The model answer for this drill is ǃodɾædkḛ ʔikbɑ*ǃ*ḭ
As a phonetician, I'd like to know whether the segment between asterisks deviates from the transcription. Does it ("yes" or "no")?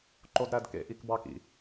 yes